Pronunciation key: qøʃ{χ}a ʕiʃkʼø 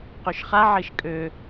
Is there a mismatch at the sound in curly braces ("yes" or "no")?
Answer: no